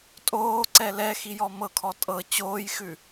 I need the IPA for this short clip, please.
tʼoːǀɛ lɛxijɔ mɤkʰɔ tʼɤ t͡ɕoːjxʉ

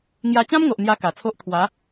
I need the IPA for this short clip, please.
ŋja˧t͡ɕã˦mŋo˨ʔ n̪ja˦ka˨˩t͡sʰo˦ʔ t̪ʰwa˨˦

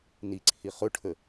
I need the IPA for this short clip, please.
niǀʰi χʊʈʰə

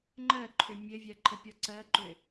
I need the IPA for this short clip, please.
ŋ͡ǃɜǃʰʏ mʲɘvʲɜ ǃʰɘpʲɔǀɜǃʏ

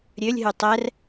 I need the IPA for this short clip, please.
ɾʲølʲɦʉ tˤɛr

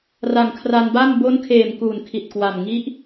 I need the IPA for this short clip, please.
ra˨˩ŋkʰra˧nba˥˩m bo˦˥nkʰeː˨˩m kuː˨˩nkʰi˨˩t̚kwa˨˩m ŋi˦˥ʔ

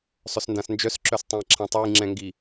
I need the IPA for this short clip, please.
sˤœsndãsnd͡ʒœs ǁœstˤɛ̃jǁʰãtˤoj ŋ͡ǁɛ̃ŋɡi

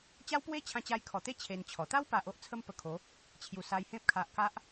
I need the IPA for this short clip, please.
t͡ɕa˦wpwe˦t͡ɕʰã˧ t͡ɕa˧jkʰɔ˨˩t̪e˦ t͡ɕʰe˧nt͡ɕʰɔ˨˩ t̪a˦wpa˨ʔ o˦ʔ t͡sʰə˦mpə˧kʰo˨˦ | t͡ɕʰju˨˩sa˧jhẽ˦p̚ kʰa˨ʔka˦ʔ

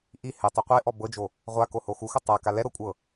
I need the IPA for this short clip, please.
ʔi hɛtˤɛ qʷeʔɔ bɤd͡ʒo | ʁʷako hoxuxɤ tˤaka lɛɾɤ kʷʼɤ

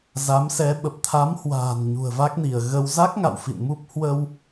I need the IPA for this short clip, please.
za˨˦msɛ˨˦ ɓə˨˩p̚t̪ʰa˨˦mhwa̤ː˨˩n ɲṳ˨˩ə̯va˦˥k̚ni˧˩ə̯ ɣə˧w za˦˥k̚ ŋa̰˧˨wfḭ˧˨nmu˦˥p̚ hwə˧w

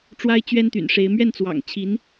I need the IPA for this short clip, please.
ʈ͡ʂwa˥ɪ̯ t͡ɕɥɛ˥nt̪y̰˨˩nʂe˧˥ɪ̯ mɥɛ˥˩nt͡swɑ̰˨˩ŋ t͡ɕʰi˧˥n

